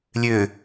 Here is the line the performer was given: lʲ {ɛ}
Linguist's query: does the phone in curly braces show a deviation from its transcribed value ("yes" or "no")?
yes